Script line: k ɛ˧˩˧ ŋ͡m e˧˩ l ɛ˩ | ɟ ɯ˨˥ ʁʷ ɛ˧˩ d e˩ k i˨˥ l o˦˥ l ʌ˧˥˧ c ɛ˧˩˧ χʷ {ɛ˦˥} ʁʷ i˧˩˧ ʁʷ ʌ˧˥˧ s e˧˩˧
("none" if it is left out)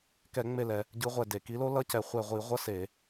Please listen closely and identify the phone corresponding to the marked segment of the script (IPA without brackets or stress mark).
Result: ɛ˧˩